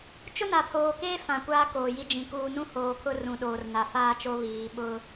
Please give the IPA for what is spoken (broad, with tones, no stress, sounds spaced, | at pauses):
t͡ʃ ʊ˦ n a˨ pʰ oː˨ k eː˦ f ã˨ kʷ aː˦ k oː˨ j i˦ d͡ʒ ĩ˨ k uː˨ n ũ˦ h oː˨ kʰ ʊ˦ r ũ˨ ɗ oː˨ r n a˨ f aː˦ t͡ʃ o˦ β iː˨ ɓ ʊ˦